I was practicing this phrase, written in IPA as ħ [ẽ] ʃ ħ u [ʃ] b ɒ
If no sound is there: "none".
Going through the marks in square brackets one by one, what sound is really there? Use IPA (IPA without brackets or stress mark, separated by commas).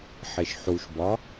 e, ʃ